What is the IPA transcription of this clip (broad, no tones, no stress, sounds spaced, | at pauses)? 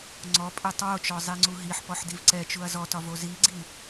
ŋ͡ǀ ɔ pʼ ɛ tˤ w o t͡ʃ ɔ zˤ i ŋ͡ǀ u ɦ i ħ p ɔ ħ d i v ǀ ɛ t͡ʃ u ɐ̯ z ɔ t ɒ v o z i ɡ͡ǀ i